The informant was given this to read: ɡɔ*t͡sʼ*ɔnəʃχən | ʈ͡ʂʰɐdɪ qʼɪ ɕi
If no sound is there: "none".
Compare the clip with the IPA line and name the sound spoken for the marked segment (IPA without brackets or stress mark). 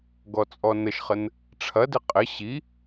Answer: t͡sʼ